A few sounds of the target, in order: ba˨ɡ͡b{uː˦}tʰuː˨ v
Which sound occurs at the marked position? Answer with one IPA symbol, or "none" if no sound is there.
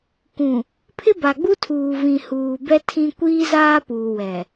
u˦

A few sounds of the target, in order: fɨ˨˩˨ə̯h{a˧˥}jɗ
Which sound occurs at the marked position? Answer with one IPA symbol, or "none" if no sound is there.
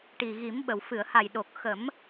a˨˩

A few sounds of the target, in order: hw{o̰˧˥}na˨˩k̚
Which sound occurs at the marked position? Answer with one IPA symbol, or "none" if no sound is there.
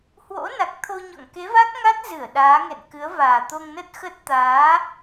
o̰˧˥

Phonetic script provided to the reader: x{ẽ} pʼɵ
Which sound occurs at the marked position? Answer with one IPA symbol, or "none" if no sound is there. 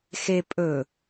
e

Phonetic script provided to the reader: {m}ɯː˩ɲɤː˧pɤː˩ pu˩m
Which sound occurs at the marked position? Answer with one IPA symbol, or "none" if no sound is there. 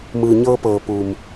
m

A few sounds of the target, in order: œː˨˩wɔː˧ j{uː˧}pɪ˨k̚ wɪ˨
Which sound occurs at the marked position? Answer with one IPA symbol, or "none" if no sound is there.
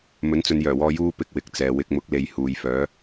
uː˧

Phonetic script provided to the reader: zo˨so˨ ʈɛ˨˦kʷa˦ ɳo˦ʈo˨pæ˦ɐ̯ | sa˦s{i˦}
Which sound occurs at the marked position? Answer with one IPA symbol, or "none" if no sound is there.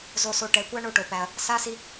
i˦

